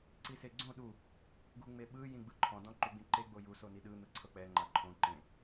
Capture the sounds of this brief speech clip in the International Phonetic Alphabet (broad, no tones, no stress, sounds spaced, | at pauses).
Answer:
ǀ i s e ɡ͡ǀ õ ɗ u | ɡ u ŋ͡m e ɓ ɯ j ĩ ɡ͡b ɯ ǃʰ ɔ̃ d ɔ̃ ǃ u ɡ͡b ĩ ǃ e ɡ͡b o j u s o n i ɗ ɯ n̪ ɯ ǀʰ ɤ k͡p ɛ ŋ͡ǃ a ǃʰ õ ǃ ẽ